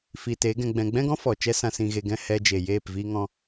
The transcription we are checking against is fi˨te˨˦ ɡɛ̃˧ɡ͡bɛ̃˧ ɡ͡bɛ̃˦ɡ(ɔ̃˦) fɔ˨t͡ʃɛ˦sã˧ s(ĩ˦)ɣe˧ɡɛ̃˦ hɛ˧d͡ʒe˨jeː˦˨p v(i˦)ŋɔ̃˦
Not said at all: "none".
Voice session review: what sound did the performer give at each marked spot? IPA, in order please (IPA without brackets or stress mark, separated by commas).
ɔ̃˦, ĩ˧, i˦